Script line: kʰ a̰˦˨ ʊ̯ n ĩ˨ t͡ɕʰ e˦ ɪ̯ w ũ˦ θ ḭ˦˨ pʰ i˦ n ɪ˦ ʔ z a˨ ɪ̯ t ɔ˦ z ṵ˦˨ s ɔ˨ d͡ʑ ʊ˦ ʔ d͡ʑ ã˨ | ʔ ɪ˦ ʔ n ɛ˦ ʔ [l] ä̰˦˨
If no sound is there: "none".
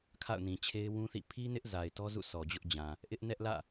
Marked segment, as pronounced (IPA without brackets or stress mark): l